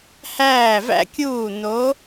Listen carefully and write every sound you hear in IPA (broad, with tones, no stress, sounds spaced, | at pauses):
h æː˧˩ v æ̰˧ kʲ uː˧˩ n o˩˧